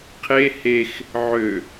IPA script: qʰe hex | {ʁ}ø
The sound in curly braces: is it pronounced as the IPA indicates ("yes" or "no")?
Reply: no